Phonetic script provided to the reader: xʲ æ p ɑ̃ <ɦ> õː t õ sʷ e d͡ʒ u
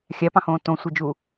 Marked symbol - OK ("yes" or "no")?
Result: no